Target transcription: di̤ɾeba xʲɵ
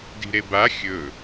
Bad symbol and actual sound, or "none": none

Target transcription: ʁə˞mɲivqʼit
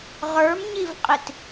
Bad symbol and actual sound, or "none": none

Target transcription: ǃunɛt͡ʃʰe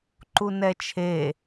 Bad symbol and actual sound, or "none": none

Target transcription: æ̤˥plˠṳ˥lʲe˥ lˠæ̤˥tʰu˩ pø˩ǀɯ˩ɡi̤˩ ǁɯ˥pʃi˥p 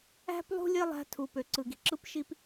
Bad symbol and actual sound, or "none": none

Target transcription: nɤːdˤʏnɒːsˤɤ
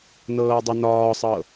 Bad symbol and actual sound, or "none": none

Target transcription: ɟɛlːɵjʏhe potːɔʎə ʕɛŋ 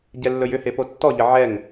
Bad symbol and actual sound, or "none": none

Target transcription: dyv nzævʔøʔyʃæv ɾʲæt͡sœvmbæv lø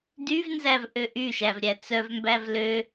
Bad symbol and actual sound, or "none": none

